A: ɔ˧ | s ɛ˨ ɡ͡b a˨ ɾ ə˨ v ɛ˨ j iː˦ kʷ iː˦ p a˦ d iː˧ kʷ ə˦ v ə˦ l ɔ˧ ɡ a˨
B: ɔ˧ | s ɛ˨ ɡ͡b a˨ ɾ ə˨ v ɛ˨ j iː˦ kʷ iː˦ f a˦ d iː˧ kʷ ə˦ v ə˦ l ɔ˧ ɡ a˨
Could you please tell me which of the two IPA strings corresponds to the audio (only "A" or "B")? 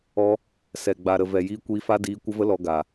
B